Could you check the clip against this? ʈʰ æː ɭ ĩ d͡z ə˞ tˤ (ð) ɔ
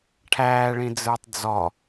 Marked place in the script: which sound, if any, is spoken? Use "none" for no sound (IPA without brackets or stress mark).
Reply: d͡z